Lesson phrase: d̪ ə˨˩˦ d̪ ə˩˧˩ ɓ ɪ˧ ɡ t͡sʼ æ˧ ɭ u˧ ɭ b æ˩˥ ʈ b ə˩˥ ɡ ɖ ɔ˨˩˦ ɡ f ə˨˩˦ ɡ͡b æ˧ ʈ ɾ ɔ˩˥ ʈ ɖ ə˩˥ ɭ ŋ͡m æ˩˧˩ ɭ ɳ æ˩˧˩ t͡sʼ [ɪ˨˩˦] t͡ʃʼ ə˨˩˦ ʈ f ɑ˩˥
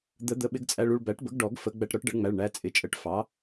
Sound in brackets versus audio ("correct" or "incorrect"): incorrect